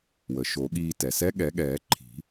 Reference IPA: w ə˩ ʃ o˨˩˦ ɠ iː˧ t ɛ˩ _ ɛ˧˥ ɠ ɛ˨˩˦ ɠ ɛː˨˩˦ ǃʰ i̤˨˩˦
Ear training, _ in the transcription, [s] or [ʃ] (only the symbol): s